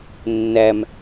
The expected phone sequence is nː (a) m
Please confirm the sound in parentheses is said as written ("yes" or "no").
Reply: no